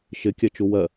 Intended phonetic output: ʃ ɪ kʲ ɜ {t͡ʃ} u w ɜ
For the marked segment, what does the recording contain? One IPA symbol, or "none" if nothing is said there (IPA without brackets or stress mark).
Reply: t͡ʃ